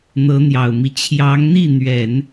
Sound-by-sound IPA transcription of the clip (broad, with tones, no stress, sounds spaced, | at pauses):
n̪ ɤ˧˥ n̪ j ɑ˨˩ ʊ̯ m i˦ t͡ɕʰ j ɑ˧˥ ŋ n̪ i˥˩ n̪ ɥ ɛ˨˩˦ n